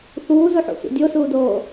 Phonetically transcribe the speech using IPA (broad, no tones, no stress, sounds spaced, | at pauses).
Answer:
θ uː z u ħ o̰ sʷ ḛ dʲ o s uː d oː